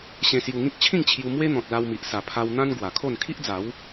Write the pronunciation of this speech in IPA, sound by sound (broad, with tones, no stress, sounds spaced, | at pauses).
ɕ ẽ˧ s j u˧ ŋ ĩ˦ k̚ t͡ɕʰ ĩ˥˧ ŋ t͡ɕʰ j u˧ m w e˦ n̪ ɔ̃˨ t̚ l a˧ w m i˨ ʔ s a˨˩ pʰ a˧ w n̪ ã˦ n ɡ w a˨˩ kʰ o˥˧ n kʰ i˦ ʔ d͡z a˨˦ w